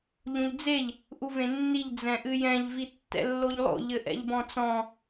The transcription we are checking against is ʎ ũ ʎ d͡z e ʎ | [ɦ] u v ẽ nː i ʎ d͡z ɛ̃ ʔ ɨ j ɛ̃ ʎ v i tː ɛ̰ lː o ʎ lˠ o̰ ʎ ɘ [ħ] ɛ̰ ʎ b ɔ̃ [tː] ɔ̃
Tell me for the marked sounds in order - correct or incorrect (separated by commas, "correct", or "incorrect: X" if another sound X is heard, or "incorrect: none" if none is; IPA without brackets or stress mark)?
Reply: incorrect: ʔ, incorrect: ʔ, incorrect: t͡s